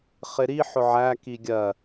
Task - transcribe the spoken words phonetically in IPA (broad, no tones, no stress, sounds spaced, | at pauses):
χ ɪ ɾ i ħ ʊ ʕ æ k i ɡʲ ɜ